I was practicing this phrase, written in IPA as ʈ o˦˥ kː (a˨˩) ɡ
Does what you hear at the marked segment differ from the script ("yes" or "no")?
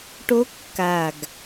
no